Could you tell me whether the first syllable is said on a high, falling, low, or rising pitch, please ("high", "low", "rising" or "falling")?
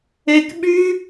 high